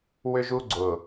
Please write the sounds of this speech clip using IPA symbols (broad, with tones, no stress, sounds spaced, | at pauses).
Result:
w ʏ˦ ʒ u˦ ɡ͡ǀ ʊ˨